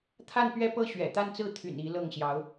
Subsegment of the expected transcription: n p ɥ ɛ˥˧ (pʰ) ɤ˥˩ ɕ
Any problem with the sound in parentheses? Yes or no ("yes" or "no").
yes